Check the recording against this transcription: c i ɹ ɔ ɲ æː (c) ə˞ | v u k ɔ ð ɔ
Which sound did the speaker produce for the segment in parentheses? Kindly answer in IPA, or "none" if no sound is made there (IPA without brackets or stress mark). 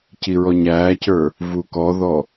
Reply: c